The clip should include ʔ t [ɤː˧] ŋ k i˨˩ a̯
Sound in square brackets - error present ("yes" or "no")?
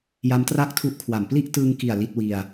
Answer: yes